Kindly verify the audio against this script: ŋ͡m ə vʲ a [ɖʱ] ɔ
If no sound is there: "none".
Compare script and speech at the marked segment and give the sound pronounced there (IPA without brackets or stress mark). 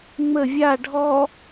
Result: ɖʱ